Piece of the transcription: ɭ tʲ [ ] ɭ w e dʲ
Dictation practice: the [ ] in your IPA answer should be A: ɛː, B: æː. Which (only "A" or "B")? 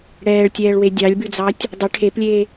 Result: A